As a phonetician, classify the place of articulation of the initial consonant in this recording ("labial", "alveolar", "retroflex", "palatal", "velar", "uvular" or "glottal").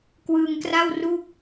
velar